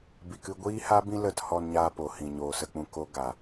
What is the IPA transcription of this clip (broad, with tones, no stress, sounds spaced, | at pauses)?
b i˨ k ɨ˧ ɡʷ iː˦ h a˦ b ĩ˦ l ə˦˨ t h ɔ˧ n ɲ aː˧ p o˨ h ĩ˨ ɲ oː˨ s ə˦˨ k͡p ũ˦˨ k o˦ ɡ a˨